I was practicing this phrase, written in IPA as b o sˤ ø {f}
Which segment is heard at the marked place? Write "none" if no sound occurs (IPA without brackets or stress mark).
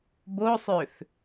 f